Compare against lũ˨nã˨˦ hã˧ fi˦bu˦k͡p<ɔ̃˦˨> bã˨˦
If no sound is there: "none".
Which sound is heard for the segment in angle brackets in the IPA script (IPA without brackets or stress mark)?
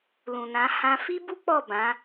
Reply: ɔ˦˨